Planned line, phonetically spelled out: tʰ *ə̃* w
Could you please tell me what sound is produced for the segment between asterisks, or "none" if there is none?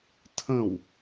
ə̃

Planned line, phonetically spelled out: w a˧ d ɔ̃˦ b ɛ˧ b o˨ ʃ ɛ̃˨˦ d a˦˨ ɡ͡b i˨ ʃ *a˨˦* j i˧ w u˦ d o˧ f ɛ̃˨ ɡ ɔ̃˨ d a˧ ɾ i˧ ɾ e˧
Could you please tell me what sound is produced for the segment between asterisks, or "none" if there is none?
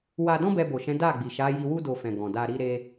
a˨˦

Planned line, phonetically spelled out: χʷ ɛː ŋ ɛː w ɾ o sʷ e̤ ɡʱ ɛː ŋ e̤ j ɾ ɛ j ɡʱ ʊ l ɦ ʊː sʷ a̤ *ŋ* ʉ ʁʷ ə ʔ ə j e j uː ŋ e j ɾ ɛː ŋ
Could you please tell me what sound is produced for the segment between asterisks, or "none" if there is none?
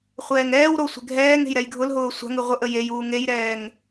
ŋ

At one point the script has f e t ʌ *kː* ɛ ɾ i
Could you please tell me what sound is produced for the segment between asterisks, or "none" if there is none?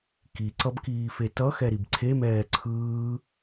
x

